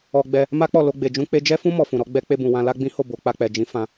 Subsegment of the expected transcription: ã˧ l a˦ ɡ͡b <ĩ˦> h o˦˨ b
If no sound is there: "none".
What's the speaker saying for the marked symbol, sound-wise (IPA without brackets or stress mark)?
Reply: ĩ˦